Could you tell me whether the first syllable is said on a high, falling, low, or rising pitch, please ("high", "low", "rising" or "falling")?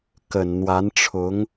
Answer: low